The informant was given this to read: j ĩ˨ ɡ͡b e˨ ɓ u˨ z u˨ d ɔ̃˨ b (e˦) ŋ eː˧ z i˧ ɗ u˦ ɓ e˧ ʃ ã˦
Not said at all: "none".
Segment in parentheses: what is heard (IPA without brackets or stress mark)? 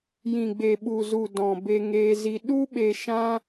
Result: e˧